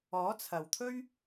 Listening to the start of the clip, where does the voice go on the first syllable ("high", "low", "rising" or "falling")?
rising